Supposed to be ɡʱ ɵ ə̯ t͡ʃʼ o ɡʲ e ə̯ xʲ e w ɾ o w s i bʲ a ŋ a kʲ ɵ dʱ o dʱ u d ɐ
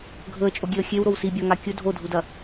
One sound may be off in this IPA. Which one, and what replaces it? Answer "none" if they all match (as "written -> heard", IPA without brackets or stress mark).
none